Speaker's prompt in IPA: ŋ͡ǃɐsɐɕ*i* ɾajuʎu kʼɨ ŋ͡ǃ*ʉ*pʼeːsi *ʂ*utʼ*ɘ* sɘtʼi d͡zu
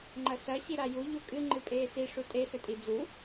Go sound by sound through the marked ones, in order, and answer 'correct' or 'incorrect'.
correct, incorrect, correct, incorrect

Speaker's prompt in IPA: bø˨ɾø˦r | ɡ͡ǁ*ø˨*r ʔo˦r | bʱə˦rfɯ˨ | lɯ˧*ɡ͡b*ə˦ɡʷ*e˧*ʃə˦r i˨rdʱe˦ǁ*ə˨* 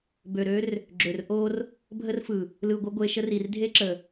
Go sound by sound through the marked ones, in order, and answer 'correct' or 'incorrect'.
correct, incorrect, correct, correct

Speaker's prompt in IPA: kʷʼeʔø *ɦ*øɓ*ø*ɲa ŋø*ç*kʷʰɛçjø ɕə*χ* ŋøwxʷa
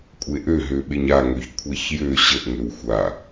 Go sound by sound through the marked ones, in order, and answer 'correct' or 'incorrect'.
correct, incorrect, correct, incorrect

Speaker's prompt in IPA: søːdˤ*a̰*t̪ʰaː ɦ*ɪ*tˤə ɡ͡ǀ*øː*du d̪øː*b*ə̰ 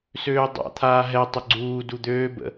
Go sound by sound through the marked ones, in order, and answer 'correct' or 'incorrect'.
correct, incorrect, incorrect, correct

